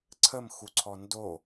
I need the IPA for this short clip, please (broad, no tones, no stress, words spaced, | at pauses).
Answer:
ǀʰəmxuǀʰɔ ndo